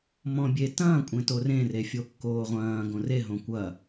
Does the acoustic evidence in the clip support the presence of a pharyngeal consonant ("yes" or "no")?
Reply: no